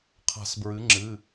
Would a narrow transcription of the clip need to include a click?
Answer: yes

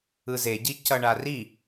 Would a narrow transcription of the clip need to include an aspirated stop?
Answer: no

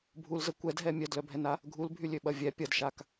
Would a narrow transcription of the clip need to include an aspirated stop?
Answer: no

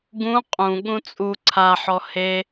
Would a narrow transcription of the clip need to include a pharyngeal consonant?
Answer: yes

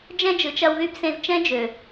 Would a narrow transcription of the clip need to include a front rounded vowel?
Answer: yes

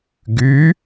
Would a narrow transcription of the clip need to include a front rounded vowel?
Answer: yes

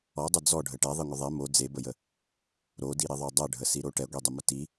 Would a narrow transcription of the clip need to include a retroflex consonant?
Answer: yes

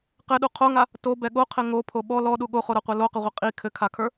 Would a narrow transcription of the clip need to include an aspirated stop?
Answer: yes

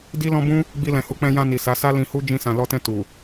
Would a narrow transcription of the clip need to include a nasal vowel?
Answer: yes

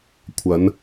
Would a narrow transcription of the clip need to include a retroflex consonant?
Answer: no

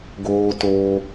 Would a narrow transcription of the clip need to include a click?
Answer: no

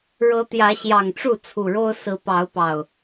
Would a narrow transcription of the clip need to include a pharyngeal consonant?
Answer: no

